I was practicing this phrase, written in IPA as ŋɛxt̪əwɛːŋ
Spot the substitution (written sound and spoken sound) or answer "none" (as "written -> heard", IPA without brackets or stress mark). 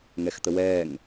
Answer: none